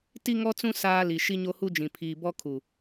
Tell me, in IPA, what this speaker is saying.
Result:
t i˦ ŋ ɔ˦ t͡s ũ˦ s aː˦ l i˨ ʃ i˦ ɲ o˦ h u˦ d͡ʒ ĩ˨ pʰ iː˨ b ɔ˦ kʰ u˨

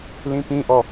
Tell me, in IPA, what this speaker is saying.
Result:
l ĩ p ĩ ʔ ɔ

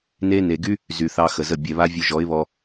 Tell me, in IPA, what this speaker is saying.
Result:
n e˦ n e˨ ɡ y˦ | z y˨ θ ɑ˧ x ə˨ z ə˦˨ bʲ ɛ˨ β a˦ vʲ u˧ ʒ ɔ˨˦ ɪ̯ β ɔ˧

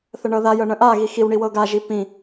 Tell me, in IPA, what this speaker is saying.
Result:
θ ə ɳ ɤ ð a j ɤ ɳ ə̃ ʔ a ɣ i x i w ɳ i w ɤ ɡ a ʒ i p ĩ

